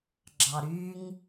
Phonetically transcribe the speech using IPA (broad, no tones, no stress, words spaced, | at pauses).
ɡ͡ǁɑɾyŋ